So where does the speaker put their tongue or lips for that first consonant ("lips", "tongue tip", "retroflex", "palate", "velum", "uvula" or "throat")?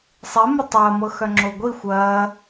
tongue tip